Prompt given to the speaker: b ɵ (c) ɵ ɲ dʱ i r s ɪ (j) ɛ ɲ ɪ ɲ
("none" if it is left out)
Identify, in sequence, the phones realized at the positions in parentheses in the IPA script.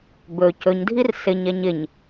c, ɲ

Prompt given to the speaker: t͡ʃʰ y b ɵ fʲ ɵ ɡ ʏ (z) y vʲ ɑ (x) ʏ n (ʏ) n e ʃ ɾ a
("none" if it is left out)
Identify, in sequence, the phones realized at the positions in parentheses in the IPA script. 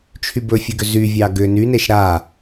z, ɡ, y

